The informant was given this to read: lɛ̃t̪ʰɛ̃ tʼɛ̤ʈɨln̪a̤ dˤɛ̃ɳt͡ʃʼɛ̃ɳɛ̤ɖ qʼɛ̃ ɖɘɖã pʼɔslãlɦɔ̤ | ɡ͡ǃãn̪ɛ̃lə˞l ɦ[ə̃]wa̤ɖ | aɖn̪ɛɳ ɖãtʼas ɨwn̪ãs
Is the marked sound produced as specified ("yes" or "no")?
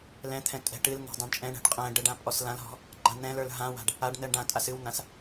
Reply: no